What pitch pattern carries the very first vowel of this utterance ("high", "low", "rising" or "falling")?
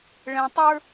low